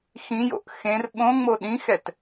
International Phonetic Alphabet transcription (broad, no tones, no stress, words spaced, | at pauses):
xĩjo̰ʔ xẽr ɓõŋ͡mo ɗĩxɛt